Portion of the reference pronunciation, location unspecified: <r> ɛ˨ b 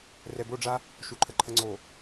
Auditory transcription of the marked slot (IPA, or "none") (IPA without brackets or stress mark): r